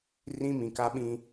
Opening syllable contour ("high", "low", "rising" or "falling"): high